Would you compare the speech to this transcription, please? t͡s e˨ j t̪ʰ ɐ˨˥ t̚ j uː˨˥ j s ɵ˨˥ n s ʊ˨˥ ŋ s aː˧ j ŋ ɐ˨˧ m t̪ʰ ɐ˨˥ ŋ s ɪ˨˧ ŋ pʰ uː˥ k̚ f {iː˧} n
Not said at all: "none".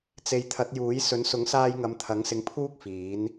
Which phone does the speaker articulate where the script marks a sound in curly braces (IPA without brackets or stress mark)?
iː˨˥